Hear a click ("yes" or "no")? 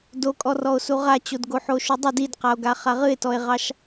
no